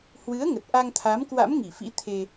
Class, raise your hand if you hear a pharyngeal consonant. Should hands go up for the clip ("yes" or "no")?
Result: no